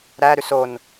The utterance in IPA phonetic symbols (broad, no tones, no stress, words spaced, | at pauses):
ɾæ ɾʉson